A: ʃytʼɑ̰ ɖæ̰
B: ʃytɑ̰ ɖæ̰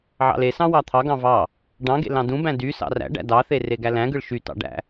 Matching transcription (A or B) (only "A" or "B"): B